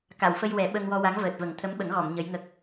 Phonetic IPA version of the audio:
k a˨˩˨ w f ə˧ j w ɛ˨˩˦ ɓ ə˧ ŋ w ɔ˧ w a˧˥ ŋ v əː˨˩ t̚ v ə˨˩˦ ŋ t̪ʰ ə˧˥ m ɓ ə˨˩˦ ŋ ɣ ɔ˨˩˨ m ɲ ə˧˥ j ŋ ə˦˥ k̚

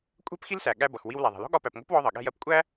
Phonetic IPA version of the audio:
kʷʼ ɛ̤˥ p x i˥ l s æ˩ ɠ æ˧ b ʌ˩ x w i˧ w l æ˩ ðˤ ɛ̤˩ l ɔ̤˥ ɠ ɒ˧ p æ˩ p ŋʷ ɛ̤˥ p w ɔ˧ ðˤ ʌ˩ ɠ ɛ̤˧ j ɜ˧ p kʷʼ æ˥

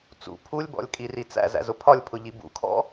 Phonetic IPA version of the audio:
t͡s ṵ pʰ u lʲ b ɔ̰ lʲ kʼ i r i t͡s æ̰ z æ̰ z ʊ pʰ ɒ lʲ pʰ ʊ ʎ i b ṵ kʰ ɔ̰

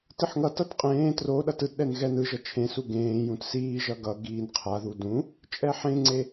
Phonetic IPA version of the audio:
t ɯ ħ ŋ ʌ t ʌ t qʼ ẽː t r o ɗ ʌ t ɯ t ɗ ɛ n ɣ ɛ n ɯ ʒ ʌ t͡ʃʰ ẽ s u ɡ ẽː j ũ t s iː ʒ ʌ ɡ ʌ ɡ iː n qʰ a ð u d ũ | t͡ʃʼ ɛ ħ ẽ ŋ͡ǀ e

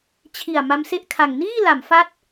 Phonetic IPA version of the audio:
t͡ɕʰ i˨˩ a̯ m a˦˥ m s e˥˩ ʔ kʰ a˨˩ ŋ n iː˥˩ l a˩˦ m f a˦˥ t̚

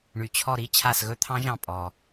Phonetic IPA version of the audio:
ɳ y˩ t͡ɕʰ ɔ˧˩ ɾ i˧˥ t͡ɕʰ a˧˩ s ɣ ɵ˧˥ t̪ʰ ɑ̃˧˥ ʒ ɑ̃˧˩ pʼ ɔ˩

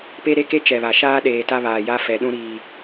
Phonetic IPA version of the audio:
p e˦ ɾ e˦ k e˦ t͡ʃ ɛ˨ β a˨ ʃ aː˦ ɗ eː˨ t a˦ β aː˨ j a˦ f ɛ˨ ɗ ũ˦ ɾ iː˦

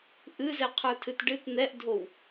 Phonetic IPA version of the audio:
ʔ ɨ z ɛ qʰ ə˞ tʰ ɨ t ɖ ɨ t n̪ ɛ ʔ dʱ o w

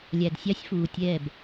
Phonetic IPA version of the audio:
lʲ æ˨ d sʲ ɑ˦ sʲ f uː˨ tʲ ɛː˦˨ b

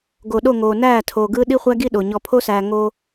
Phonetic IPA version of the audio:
ɡ o˨ ɗ o˦˨ ŋ oː˨ n æː˦˨ tʰ oː˨ ɡ ɯː˦ ɗ i˦ χʷ æ˦ ɡ i˦ ɗ o˨ ɲ ɔ˨ pʰ o˦ s æː˨ ŋ oː˦

